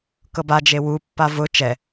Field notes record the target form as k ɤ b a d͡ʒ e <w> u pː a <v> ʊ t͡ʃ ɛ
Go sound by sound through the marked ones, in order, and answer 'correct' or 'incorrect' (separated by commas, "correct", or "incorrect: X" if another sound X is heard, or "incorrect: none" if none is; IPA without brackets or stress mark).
correct, correct